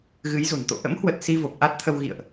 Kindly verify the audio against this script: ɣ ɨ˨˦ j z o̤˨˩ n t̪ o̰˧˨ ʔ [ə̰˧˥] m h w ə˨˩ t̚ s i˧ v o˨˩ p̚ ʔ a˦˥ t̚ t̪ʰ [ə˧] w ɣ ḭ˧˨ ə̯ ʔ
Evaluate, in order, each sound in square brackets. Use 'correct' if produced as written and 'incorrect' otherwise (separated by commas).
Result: correct, correct